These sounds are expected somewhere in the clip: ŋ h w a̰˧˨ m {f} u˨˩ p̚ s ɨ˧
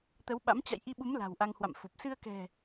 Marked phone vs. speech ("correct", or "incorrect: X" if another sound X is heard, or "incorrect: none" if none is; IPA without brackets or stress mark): correct